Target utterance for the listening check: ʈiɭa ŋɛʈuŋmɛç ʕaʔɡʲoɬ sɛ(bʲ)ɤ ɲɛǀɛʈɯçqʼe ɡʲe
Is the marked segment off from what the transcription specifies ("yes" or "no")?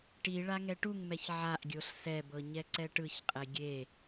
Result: yes